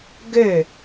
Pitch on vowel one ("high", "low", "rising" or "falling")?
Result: falling